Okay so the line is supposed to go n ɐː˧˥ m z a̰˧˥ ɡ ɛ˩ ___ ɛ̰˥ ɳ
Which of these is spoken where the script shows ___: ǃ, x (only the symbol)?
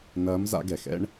x